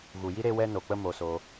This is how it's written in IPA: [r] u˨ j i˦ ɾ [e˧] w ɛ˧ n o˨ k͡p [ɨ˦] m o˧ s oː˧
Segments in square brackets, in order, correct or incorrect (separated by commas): incorrect, correct, incorrect